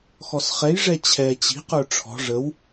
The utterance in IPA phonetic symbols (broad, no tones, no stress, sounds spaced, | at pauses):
x ɔ s χ ɛ j ʐ ɛ t͡ɕʰ ɛ t͡ɕ i̤ q ə˞ ʈ͡ʂʰ ɔ̤ ʐ ə w